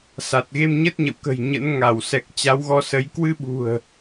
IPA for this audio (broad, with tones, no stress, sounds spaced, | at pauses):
s a˨˩ t̚ ɣ e˧ m ɲ ə˦˥ t̚ ɲ ə̰˧˨ w k ə̤˨˩ j ɲ ə̰˧˥ n ŋ a˧˩ w s ɛ˨˩ k̚ t͡ɕ a˨˦ w ɣ ɔ˨˦ s ə˨˦ j k w ɨ˧ ɓ ṳ˨˩ ə̯